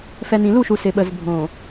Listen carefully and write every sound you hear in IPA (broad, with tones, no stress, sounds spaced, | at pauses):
f ɛ˨ n ĩ˨ l u˦˨ ʃ u˨ s ɪ˨ ɓ ə˨ z bʱ õ˨